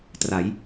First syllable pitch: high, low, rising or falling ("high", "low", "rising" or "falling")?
rising